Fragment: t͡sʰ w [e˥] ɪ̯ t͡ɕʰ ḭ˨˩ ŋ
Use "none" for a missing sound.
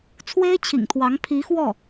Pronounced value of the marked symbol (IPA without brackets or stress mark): e˥